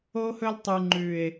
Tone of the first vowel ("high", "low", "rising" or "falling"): high